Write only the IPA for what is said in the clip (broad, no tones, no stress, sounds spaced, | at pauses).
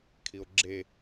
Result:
kʰ i o̯ ɡ͡ǁ e